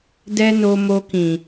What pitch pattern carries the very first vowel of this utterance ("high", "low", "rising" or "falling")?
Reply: high